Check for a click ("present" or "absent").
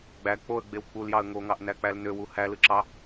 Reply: present